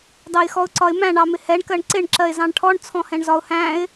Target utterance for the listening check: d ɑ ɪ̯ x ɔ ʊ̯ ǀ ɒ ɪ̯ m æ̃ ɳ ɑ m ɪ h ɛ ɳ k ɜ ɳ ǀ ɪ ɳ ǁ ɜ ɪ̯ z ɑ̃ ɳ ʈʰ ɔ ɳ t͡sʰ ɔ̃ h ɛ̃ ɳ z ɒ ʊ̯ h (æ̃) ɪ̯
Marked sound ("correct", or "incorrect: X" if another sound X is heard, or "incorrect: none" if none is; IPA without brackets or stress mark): correct